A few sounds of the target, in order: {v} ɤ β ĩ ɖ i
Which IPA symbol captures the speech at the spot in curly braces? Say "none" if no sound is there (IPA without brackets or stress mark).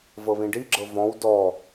v